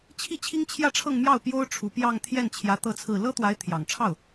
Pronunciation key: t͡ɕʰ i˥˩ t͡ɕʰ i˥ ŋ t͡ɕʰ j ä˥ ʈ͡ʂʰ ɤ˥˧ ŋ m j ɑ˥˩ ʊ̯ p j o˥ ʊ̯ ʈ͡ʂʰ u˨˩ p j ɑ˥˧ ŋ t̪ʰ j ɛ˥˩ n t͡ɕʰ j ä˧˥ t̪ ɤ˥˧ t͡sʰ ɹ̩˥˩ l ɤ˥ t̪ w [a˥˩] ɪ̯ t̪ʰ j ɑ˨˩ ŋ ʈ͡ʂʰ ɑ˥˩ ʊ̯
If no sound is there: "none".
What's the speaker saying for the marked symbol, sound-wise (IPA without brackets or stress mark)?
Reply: a˧˥